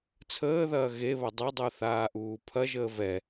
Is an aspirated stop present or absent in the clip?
present